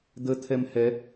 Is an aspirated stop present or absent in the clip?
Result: present